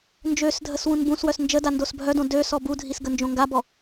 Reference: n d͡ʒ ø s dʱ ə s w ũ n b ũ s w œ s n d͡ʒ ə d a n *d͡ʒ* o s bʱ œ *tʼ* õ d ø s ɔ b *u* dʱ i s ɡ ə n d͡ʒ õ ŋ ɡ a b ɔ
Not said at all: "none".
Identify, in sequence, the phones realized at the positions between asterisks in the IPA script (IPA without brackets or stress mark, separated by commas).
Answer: d, d, u